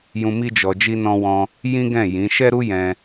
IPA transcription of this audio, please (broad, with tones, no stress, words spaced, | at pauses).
jũ˧ mi˦d͡ʒɔ˧ d͡ʒi˧nɔ̃˧wɔ̃˧ | jĩ˦ɡɛ̃˦˨ jĩ˨˦ ʃɛ˦ɾu˦ jɛ̃˧